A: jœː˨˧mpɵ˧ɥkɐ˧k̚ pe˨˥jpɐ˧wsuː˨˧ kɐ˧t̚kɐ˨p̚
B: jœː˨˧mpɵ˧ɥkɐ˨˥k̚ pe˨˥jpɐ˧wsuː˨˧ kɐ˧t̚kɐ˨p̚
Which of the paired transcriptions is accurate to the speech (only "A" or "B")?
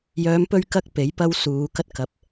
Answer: A